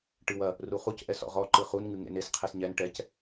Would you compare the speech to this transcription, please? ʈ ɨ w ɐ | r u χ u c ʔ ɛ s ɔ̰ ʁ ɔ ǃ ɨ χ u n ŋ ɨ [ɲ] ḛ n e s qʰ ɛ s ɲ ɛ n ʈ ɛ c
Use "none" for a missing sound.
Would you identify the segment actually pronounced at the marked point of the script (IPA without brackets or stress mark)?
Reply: ŋ